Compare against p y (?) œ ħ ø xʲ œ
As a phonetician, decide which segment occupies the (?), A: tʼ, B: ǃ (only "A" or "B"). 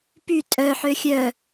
A